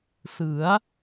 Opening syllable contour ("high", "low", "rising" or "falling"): rising